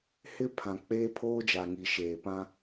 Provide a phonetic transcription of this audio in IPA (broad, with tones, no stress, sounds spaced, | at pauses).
h ɪ˦ pʰ ã˨ k͡p e˦ pʰ oː˦ d͡ʒ a˨ ŋ i˨ ʃ eː˨ p ã˦